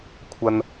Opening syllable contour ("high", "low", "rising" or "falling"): high